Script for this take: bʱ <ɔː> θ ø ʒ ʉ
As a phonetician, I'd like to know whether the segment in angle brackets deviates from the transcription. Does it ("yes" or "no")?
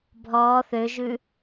no